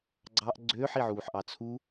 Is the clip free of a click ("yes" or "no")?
no